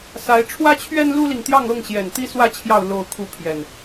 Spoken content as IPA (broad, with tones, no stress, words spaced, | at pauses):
sa˨˦ɪ̯ ʈ͡ʂʰwä˦t͡ɕʰɥɛ˦n lu˦li˨ŋt̪jɑ˥˨ŋɤ˥˨ŋ ɕjɛ˨˩nt̪i˦ swä˨˦t͡ɕʰjɑ˨˩ʊ̯ lo˥˨ʊ̯kʰu˥˨pʰjɛ˨˩n